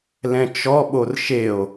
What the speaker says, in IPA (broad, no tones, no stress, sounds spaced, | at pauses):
l ɛ̃ t͡ʃ ɔ ɓ o r ʃ e o̯